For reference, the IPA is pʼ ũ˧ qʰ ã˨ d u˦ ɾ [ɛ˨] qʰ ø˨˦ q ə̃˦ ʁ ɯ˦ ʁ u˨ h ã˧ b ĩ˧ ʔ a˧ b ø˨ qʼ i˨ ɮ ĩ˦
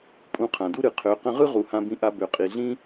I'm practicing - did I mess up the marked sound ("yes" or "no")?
yes